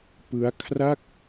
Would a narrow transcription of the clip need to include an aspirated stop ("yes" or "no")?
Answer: yes